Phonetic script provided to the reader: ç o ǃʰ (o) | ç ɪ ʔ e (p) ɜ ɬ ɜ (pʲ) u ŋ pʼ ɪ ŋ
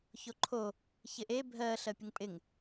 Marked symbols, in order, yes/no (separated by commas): yes, no, yes